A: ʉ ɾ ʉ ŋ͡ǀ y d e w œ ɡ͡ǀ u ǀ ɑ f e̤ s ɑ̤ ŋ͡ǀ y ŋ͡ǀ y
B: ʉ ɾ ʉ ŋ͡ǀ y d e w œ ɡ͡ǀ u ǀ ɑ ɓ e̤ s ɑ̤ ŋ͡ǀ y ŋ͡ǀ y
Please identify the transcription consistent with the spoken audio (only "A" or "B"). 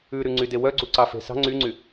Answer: A